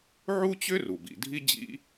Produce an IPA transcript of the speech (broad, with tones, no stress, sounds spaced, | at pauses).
ʕ u˥ t͡ɕ ʏ˥ r u˩ b ḭ˩ dʱ i˥ d͡ʑ ḭ˥